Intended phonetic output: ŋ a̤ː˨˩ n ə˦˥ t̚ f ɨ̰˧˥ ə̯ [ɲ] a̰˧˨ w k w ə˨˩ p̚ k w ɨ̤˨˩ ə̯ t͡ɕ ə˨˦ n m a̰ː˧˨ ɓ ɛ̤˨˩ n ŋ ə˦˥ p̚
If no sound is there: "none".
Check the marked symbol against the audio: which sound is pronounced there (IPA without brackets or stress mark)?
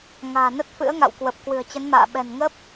ŋ